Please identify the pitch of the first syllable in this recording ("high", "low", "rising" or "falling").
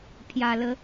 low